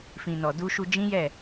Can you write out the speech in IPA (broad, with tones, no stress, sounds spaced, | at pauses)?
f ĩ˨ n ɔ˨ d u˧ ʃ u˧ d͡ʒ ĩ˦ j ɛ˦˨